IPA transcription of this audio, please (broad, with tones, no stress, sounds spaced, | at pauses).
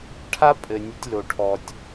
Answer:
ʈʰ a˦ pʼ ɘ˨ nʲ ɨ˧ tʲ l o˨ ʈʰ ɔ˨ tʲ